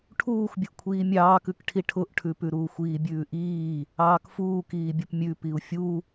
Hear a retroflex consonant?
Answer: yes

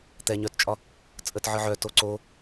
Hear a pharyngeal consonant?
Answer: yes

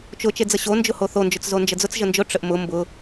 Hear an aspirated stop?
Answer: no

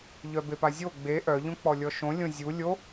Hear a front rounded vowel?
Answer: yes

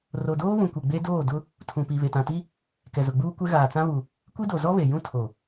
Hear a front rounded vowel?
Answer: no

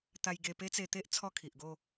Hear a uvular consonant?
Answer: no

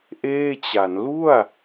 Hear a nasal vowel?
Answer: no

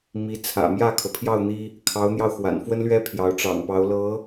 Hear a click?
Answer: no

